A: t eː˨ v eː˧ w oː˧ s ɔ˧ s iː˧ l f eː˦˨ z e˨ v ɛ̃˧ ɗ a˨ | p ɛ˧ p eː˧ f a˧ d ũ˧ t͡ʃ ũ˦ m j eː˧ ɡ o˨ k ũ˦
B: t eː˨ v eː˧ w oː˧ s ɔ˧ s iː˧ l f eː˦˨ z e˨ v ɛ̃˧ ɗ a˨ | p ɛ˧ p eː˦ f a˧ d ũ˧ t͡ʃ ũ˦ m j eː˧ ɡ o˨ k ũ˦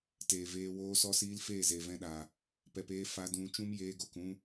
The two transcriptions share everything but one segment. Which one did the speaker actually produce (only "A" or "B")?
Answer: B